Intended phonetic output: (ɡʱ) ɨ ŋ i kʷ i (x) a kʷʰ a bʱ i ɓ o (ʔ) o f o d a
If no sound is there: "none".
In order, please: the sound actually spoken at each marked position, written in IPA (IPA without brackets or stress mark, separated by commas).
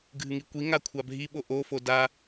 ɡʱ, ŋ, ʔ